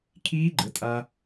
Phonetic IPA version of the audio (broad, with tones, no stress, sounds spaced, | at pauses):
kʰ iː˦˥ ɡ͡ǃ ə˩˥ tʼ a˧